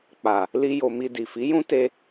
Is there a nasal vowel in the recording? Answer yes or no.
yes